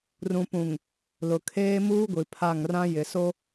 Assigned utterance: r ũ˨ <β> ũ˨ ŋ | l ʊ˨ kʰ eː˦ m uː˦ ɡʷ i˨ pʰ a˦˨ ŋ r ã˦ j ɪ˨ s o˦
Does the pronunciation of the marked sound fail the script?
yes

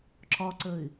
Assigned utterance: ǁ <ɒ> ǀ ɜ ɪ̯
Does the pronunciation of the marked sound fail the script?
no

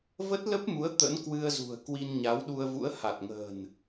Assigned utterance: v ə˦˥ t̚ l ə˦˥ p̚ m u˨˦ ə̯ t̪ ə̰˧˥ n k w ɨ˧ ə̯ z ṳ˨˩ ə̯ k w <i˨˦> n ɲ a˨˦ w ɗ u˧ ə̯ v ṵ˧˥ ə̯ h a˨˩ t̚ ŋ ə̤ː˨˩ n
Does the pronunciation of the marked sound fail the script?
yes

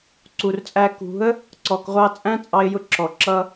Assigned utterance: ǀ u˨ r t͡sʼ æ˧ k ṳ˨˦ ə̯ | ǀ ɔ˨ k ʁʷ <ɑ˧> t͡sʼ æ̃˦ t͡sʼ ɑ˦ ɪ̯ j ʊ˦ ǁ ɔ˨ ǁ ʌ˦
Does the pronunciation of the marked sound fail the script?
no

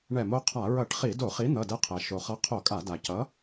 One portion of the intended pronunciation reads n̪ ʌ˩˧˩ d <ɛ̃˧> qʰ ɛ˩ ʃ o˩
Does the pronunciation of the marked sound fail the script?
yes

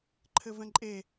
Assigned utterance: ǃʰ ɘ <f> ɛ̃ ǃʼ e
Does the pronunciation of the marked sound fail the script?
yes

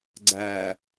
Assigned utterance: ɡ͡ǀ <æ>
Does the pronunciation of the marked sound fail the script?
no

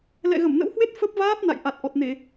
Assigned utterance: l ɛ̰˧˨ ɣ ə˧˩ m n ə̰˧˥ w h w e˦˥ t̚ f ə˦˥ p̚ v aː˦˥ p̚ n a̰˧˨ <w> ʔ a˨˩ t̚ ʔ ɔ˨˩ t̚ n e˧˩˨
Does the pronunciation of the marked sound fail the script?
yes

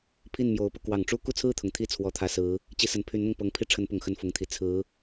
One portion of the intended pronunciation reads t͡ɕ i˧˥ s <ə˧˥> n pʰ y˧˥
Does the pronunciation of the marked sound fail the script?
yes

